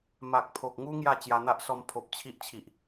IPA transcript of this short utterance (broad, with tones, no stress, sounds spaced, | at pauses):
m a˨ k̚ pʰ o˨ k̚ ŋ u˦ ŋ j a˥˧ t͡ɕ j a˧ n̪ a˦ ʔ s ɔ˧ m pʰ o˨ p̚ t͡ɕʰ i˦ ʔ t͡ɕʰ i˨ ʔ